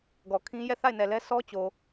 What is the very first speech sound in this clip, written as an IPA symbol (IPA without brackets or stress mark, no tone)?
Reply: ɡ